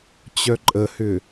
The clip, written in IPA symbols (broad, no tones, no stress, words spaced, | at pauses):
t͡ɕœǃʼəhʏ